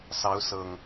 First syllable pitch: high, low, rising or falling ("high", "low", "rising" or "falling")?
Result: rising